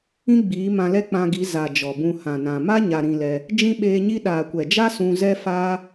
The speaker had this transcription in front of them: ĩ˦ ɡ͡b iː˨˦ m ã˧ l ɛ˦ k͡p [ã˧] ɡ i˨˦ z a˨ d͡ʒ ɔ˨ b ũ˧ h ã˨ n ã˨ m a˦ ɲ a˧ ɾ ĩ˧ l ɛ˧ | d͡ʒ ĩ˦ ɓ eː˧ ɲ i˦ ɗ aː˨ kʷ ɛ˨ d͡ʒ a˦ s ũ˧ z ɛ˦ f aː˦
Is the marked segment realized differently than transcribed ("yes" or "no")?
no